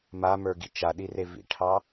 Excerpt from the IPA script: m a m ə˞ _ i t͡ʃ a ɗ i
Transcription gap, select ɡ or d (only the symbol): ɡ